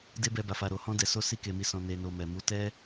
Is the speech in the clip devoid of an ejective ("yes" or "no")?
yes